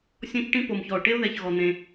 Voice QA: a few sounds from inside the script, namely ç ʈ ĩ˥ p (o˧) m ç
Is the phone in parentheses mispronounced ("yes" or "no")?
no